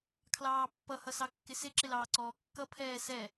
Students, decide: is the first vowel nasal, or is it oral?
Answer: oral